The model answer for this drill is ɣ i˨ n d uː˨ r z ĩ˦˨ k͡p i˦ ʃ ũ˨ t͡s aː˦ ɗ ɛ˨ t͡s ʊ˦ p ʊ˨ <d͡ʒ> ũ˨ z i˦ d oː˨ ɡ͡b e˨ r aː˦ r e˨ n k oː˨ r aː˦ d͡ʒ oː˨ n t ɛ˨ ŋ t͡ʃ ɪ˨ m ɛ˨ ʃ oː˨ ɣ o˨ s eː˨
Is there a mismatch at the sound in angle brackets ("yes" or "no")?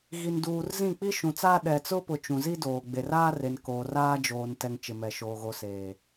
yes